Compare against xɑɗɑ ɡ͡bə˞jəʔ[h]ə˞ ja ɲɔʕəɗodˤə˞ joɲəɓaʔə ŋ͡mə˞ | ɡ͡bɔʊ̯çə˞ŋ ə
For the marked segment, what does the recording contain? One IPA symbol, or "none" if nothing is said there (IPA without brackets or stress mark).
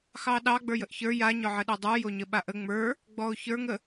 ç